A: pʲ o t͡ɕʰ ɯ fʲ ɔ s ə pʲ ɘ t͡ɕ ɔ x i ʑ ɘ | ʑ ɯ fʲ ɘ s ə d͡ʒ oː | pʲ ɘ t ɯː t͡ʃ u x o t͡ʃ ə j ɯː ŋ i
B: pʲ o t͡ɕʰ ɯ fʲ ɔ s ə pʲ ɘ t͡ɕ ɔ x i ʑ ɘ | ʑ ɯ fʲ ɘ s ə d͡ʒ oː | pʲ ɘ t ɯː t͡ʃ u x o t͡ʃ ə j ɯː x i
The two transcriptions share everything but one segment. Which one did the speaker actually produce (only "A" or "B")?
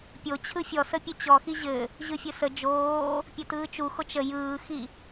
B